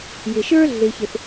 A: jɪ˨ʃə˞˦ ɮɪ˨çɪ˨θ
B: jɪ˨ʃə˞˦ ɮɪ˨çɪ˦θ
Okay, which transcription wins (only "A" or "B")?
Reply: A